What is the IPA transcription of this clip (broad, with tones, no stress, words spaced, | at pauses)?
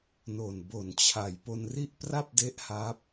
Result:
no˨˩nbo˨˩nt͡ɕʰa˨˩j po˧nri˥˩ʔ pra˥˩p̚de˦˥ʔ ha˦˥p̚